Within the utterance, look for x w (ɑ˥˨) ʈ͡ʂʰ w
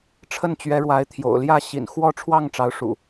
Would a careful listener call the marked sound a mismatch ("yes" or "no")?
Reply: yes